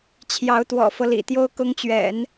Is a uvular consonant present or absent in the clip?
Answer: absent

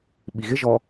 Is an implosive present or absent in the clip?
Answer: present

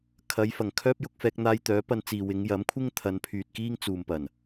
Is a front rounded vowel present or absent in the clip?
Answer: present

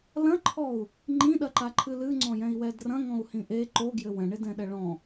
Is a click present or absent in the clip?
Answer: present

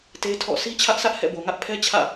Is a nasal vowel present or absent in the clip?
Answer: absent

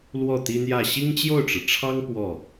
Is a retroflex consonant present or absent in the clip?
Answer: present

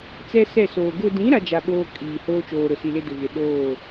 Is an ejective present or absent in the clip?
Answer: present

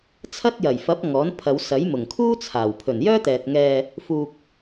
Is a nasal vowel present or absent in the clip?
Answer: absent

